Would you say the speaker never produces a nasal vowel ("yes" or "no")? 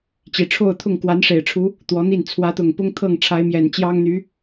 yes